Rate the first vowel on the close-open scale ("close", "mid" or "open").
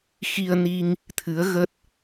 close